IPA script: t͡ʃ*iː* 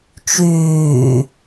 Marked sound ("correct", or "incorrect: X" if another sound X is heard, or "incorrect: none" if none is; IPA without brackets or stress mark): incorrect: yː